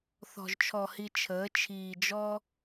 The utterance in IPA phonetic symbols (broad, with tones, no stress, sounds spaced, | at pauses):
θ ɔ̤˨ ʒ t͡ʃʰ ɔ˨ h i˨ t͡ʃʰ əː˨˦ t͡ʃʰ iː˨ d͡ʒ ɔ˦